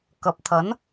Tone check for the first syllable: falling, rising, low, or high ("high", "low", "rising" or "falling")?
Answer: rising